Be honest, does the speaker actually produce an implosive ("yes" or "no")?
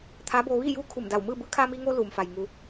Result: no